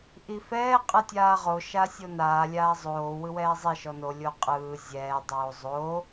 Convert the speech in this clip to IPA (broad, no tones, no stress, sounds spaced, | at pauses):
ʔ i f ɛː qʼ ɯ tʲ aː ʁ o ʃ a sʲ o n aː lʲ aː zˤ oː w ɯ w ɛː zˤ i ʃ ɔ n o lʲ o qʼ ɯː zʲ ɛː dˤ oː zˤ oː